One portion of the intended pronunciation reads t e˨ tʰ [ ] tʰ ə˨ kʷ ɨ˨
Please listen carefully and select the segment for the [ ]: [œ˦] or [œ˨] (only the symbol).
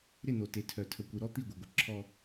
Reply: œ˨